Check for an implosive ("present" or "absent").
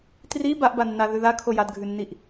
absent